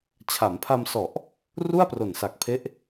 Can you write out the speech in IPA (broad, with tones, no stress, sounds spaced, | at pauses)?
t͡ɕʰ a˩˦ m pʰ a˧ m s ɔ˨˩ ʔ | r u˥˩ a̯ p r o˨˩ n s a˨˩ k̚ pʰ e˦˥ ʔ